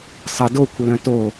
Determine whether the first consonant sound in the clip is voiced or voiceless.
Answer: voiceless